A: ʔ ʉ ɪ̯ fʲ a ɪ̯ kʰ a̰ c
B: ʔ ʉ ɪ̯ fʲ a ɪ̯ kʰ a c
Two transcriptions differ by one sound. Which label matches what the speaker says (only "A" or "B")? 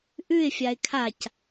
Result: B